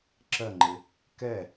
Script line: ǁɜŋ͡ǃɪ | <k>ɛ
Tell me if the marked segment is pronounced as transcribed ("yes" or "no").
yes